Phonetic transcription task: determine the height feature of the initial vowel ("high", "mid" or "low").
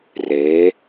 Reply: mid